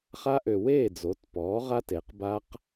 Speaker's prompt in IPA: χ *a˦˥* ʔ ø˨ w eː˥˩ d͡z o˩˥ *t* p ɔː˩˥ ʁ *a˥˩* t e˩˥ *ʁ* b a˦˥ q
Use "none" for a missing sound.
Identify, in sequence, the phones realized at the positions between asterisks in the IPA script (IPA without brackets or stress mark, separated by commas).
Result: a˦˥, t, a˦˥, q